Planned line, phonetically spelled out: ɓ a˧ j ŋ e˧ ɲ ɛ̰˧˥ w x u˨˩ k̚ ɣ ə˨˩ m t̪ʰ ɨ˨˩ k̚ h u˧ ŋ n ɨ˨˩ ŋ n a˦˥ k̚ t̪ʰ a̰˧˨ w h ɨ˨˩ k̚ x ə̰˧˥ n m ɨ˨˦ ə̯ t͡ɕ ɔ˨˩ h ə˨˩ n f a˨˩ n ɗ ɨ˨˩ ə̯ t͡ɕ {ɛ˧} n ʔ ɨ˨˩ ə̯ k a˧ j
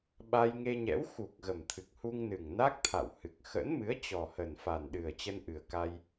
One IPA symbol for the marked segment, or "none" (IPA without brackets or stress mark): ə˧